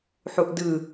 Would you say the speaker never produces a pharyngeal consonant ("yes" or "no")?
no